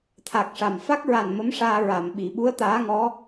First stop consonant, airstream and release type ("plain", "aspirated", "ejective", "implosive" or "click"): aspirated